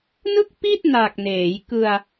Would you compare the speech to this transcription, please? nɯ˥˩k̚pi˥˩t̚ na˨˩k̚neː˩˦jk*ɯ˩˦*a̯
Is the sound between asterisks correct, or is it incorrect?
incorrect